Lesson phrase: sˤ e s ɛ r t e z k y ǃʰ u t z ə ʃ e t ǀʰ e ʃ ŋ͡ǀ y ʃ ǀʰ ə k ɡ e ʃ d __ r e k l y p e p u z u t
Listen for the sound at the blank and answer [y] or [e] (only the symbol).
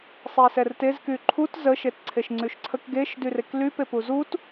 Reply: y